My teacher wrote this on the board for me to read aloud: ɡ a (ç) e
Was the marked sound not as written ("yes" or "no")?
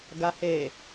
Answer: yes